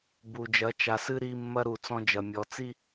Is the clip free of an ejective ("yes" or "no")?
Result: yes